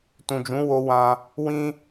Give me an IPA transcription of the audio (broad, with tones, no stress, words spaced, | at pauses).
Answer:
tũ˨d͡ʒũ˨˦wo˧wã˧ | wĩ˦